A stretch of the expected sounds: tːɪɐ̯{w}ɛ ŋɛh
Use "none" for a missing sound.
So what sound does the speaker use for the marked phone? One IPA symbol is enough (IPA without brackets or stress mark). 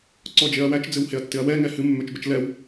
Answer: w